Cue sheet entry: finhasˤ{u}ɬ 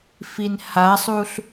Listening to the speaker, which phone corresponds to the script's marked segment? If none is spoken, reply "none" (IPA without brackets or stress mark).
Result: u